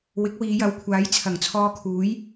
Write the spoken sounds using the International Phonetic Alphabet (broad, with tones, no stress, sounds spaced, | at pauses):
w ɪ˨˥ k̚ w iː˨˧ j ɐ˨˧ w kʷʰ aː˨˥ j t͡sʰ ɐ˨˩ ŋ t͡sʰ ɔː˧ kʰ uː˨˥ j